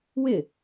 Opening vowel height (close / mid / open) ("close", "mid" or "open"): close